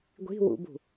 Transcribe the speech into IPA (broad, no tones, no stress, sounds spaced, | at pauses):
ɡʷ i̤ w ṵ b ṳ